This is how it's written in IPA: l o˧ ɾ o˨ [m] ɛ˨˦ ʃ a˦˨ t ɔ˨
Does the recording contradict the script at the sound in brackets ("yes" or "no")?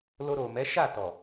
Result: no